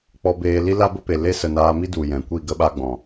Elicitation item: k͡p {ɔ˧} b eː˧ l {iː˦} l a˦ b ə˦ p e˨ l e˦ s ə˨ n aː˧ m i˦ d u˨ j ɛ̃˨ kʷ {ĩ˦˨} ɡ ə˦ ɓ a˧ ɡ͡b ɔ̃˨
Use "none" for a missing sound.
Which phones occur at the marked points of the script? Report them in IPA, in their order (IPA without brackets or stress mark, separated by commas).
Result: ɔ˧, i˦, i˦˨